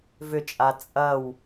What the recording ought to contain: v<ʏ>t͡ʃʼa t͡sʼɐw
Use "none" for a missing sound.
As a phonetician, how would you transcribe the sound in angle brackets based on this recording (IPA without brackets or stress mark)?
ʏ